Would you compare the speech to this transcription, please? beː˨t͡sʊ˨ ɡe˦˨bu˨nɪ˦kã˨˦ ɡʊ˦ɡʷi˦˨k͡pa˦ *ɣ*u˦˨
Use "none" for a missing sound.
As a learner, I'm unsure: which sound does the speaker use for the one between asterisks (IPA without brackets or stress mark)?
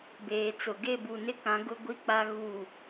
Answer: ɣ